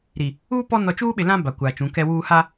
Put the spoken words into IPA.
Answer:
ɾ i˨ | uː˦ p ɔ˦ n ɔ˨ t͡ʃ u˦ ɓ ɪ˨ l ã˦ b a˨ kʷ aː˨ t͡ʃ ũ˨˦ k ɛ˦ w uː˦ h a˦

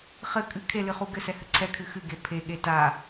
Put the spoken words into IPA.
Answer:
χ ɘ kʼ ɨ kʰ e l ɨ χ u ɡ ɘ s ɛ h ɘ ǀʰ ɛ kʰ ɨ x ɨ ɡ e pʰ e ɠ e t a

